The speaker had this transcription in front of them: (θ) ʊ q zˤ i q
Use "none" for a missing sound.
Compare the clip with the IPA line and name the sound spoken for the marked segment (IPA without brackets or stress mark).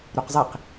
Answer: ɾ